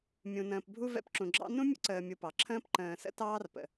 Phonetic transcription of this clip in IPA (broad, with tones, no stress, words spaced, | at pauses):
mʲũ˨nə̃ː˨pbʱu˦ vɛ̰˦pǁũ˨ɡ͡ǁɑ̰˥ nũ˥mʲə̰˥ǀəː˨ mʲu˨pɑ˩ǁʰə̃ː˥p ǃə̃ː˨sə̰˦tɑː˦rpə̰˩